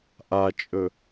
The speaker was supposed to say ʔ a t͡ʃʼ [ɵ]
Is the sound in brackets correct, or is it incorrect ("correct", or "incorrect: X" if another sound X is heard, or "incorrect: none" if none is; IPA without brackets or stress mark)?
correct